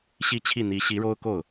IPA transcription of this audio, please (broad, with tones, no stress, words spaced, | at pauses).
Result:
ɕi˥˧t͡ɕʰi˥˩ n̪i˧˥ ɕi˧˥ɻo˥ʊ̯ ko˥˩ʊ̯